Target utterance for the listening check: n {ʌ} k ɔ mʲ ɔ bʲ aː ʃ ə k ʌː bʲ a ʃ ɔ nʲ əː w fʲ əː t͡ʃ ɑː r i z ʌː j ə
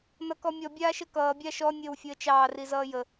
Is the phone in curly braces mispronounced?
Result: no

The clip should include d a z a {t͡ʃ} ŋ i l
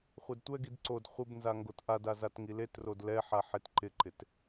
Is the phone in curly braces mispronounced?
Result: yes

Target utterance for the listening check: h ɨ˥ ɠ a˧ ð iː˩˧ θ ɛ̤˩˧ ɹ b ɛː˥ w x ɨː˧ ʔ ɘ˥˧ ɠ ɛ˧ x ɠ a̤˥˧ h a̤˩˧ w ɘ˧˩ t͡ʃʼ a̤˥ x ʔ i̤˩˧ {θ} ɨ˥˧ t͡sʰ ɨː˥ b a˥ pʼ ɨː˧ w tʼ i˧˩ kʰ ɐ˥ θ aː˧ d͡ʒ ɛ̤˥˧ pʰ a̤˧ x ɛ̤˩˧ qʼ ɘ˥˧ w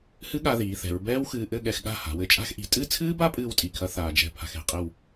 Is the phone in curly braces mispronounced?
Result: yes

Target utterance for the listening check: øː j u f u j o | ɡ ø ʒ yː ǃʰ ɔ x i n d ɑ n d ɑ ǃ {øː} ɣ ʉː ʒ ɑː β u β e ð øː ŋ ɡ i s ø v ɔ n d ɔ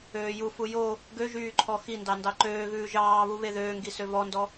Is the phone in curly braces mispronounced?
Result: no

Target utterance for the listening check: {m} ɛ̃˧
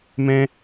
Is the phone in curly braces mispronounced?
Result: no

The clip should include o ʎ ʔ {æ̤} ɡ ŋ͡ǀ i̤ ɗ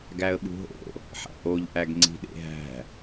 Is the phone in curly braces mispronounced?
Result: yes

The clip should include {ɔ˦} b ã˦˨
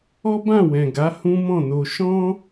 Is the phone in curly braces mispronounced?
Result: no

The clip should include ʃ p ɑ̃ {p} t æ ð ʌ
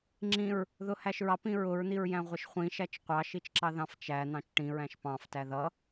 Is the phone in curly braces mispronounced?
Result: yes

